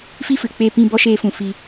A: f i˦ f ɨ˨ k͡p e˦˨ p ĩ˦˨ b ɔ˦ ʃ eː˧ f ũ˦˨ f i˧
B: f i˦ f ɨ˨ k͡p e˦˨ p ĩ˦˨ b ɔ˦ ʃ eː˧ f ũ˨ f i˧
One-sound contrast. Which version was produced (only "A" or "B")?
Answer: B